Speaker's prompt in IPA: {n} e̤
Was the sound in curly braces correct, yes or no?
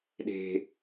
no